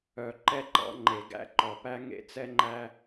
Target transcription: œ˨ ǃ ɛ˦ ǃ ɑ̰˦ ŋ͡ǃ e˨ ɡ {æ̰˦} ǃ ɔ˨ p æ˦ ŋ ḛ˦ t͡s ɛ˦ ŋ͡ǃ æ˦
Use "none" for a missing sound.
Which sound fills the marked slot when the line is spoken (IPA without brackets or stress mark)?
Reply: æ̰˦